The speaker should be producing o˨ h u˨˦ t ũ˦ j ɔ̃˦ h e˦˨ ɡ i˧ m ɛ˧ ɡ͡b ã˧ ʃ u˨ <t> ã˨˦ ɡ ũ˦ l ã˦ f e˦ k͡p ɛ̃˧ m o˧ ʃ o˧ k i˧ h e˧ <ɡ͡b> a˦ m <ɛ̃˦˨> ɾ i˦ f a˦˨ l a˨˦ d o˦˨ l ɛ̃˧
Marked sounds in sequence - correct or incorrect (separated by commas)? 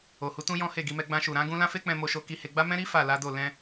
incorrect, correct, incorrect